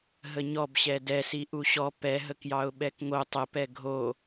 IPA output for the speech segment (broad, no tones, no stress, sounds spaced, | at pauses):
ɦ ə ɲ ɔ b ɕ ɛ d ɛ s i ʔ u ɕ ɔ p ɛ ɦ ə k j ɑ ʊ̯ ɓ ɛ k ŋ o tˤ ə p ɛ ɡʱ o